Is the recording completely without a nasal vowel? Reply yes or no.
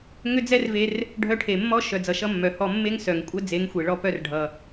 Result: yes